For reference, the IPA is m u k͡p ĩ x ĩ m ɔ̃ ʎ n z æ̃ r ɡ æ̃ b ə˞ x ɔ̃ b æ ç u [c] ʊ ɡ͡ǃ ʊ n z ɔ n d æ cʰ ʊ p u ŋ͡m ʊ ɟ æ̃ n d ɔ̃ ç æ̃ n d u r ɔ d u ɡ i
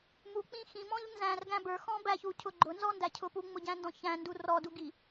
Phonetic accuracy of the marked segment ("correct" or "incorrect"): incorrect